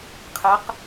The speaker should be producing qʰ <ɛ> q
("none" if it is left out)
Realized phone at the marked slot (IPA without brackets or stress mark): ɛ